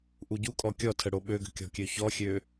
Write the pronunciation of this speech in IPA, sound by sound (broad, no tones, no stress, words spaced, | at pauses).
ʔuɟukʼɔ kʲɔtʰə ɽoɓøɡə̤ kʲɔ̤kʲøçɔxʲø